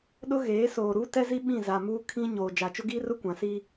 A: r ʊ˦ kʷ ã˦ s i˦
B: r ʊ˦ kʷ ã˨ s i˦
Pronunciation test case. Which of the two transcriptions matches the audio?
B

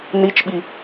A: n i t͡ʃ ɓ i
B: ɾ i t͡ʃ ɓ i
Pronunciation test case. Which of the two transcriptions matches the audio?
A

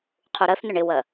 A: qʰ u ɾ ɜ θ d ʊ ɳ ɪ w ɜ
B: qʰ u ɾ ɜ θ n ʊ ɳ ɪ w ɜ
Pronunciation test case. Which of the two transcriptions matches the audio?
B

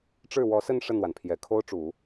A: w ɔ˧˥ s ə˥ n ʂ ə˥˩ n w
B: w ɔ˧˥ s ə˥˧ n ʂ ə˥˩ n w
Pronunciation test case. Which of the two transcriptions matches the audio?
B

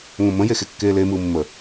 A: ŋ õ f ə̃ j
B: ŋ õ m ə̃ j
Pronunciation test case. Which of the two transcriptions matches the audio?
B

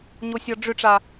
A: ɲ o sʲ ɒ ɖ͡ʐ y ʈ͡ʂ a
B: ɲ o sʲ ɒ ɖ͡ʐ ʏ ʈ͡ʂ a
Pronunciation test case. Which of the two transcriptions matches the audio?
B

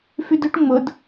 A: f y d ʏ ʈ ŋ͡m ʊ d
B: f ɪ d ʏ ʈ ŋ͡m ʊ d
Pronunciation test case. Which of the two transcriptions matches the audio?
A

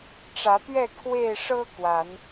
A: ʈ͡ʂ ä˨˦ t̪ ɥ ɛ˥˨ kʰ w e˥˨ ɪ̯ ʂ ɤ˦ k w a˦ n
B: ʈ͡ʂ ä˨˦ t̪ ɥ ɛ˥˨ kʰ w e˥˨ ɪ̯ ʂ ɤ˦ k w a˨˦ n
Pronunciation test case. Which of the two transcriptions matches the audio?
B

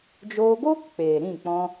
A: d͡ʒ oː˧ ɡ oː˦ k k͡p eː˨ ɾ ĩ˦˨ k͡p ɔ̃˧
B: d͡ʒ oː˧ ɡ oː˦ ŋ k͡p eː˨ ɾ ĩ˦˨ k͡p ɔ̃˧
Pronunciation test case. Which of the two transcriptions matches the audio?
A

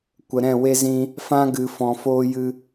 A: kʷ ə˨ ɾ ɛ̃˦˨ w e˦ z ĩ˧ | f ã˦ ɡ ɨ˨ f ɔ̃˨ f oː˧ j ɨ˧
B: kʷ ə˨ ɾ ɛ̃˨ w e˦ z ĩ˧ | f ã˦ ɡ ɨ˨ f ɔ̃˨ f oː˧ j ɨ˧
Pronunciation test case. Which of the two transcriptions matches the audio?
A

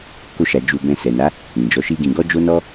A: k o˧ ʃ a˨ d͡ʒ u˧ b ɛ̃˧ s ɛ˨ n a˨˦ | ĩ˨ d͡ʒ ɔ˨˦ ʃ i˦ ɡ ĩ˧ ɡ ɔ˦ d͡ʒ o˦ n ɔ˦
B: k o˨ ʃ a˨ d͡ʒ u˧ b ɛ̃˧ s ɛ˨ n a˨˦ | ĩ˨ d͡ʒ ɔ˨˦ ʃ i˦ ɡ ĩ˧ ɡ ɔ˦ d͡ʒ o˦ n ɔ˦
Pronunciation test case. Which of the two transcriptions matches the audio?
A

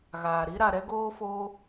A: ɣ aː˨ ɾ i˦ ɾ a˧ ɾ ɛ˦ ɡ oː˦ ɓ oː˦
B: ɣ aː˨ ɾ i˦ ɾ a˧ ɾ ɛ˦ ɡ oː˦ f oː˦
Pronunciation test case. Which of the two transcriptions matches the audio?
B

